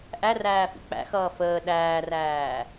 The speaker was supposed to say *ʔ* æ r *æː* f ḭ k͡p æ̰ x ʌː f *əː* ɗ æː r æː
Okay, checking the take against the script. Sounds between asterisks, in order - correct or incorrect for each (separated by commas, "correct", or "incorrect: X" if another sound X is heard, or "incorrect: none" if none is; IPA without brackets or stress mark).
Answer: correct, correct, correct